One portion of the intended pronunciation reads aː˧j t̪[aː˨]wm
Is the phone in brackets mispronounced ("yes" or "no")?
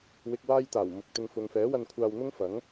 yes